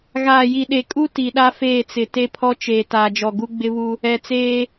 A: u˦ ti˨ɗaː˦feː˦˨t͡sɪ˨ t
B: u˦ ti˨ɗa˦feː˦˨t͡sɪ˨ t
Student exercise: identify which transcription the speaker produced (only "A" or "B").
B